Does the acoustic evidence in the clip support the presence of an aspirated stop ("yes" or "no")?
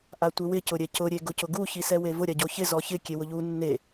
no